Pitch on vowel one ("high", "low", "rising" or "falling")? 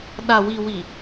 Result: low